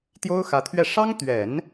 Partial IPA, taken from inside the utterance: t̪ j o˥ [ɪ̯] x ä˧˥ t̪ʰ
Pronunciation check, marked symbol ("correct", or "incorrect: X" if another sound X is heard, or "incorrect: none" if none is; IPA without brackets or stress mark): incorrect: ʊ̯